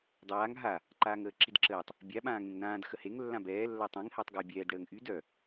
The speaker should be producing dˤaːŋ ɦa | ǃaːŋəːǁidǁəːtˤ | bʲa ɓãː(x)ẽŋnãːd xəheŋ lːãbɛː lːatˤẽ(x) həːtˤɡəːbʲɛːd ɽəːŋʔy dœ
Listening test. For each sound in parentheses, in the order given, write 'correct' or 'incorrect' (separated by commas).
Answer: incorrect, incorrect